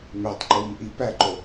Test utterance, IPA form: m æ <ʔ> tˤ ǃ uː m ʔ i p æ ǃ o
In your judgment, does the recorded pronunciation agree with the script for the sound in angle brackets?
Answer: no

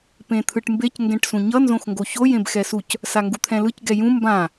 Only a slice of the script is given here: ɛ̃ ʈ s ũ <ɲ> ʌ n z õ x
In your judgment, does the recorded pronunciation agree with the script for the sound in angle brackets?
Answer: yes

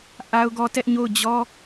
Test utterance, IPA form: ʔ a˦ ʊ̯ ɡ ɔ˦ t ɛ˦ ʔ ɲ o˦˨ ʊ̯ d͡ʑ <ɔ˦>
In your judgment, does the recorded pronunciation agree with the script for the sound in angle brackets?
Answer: yes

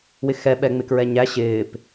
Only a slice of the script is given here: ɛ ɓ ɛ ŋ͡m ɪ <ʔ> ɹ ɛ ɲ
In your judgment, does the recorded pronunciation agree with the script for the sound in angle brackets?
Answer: no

